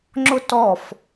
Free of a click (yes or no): no